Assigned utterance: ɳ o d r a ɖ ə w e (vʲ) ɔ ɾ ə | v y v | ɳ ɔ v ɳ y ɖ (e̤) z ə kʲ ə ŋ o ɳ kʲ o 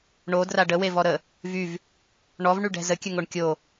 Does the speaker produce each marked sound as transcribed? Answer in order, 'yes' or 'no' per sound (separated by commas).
no, no